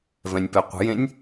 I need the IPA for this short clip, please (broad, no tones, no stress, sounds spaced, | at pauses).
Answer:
v ɛ̃ nʲ p ɛ qʷ ə̤ j ẽ nʲ